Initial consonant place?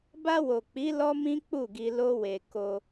labial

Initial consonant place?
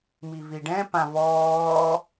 labial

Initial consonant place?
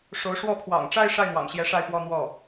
retroflex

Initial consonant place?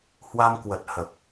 glottal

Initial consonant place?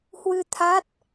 glottal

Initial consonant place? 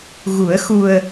velar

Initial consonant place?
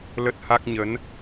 alveolar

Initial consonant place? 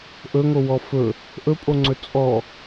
glottal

